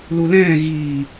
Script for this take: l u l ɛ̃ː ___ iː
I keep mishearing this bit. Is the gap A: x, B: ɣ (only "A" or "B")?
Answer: B